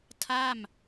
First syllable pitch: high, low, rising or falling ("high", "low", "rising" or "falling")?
falling